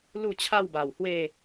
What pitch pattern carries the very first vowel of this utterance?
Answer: falling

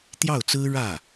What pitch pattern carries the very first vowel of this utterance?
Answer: falling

